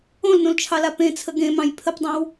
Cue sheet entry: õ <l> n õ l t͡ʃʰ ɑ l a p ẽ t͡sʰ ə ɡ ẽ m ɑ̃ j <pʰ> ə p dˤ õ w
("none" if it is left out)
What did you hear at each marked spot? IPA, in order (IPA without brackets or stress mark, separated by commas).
l, pʰ